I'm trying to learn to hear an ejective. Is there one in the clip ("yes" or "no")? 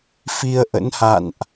no